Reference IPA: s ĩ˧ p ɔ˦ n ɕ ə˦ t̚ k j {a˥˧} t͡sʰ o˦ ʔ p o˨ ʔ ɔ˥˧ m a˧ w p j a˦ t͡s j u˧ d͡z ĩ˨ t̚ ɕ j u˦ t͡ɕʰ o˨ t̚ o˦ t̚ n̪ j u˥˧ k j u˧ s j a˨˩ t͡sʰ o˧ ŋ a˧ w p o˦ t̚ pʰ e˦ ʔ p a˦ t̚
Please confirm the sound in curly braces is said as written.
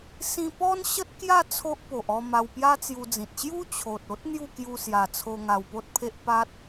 yes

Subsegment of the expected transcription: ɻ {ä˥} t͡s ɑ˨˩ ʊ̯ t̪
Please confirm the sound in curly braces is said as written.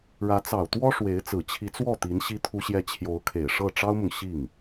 no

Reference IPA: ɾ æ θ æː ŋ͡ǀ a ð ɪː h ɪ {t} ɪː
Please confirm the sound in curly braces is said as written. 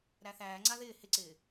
no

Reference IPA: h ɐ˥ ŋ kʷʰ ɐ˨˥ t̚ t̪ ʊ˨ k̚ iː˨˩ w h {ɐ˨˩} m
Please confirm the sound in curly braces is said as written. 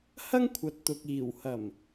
yes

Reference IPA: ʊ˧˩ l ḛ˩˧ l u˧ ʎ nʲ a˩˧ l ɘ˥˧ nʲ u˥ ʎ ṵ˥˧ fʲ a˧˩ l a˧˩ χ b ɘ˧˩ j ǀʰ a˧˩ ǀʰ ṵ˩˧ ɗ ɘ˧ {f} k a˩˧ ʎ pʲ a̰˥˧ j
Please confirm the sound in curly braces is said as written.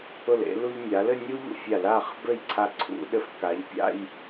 yes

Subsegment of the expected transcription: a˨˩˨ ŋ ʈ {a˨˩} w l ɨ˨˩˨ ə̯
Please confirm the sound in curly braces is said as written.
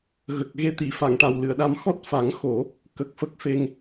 yes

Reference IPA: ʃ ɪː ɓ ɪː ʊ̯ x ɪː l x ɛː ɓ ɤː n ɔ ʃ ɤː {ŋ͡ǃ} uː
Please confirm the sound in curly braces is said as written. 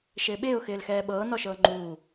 yes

